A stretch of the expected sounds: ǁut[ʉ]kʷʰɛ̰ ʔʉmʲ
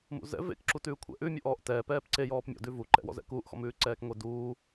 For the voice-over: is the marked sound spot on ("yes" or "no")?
no